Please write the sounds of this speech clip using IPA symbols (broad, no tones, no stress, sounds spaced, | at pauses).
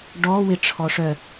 ɖ ɔ w ɪ ʈ͡ʂʰ ɔ ʂ œ